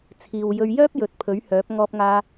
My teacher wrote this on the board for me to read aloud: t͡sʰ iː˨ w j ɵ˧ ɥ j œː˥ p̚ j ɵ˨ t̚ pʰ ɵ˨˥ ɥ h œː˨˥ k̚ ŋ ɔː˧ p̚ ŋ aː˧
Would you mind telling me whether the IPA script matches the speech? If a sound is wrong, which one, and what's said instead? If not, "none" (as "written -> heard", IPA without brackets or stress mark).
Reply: k̚ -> p̚